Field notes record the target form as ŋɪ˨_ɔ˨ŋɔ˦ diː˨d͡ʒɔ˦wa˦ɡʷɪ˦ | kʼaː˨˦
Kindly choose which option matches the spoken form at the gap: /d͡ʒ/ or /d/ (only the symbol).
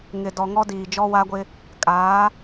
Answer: d